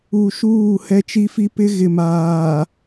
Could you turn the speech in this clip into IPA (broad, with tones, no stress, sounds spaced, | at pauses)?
u˨ ʃ uː˦˨ h ɛ˦ t͡ʃ i˦ f i˦ p ɪ˦ ɣ ɪ˨ m aː˨